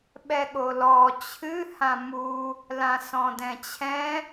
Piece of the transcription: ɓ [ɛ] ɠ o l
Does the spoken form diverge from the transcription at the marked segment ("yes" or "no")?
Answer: no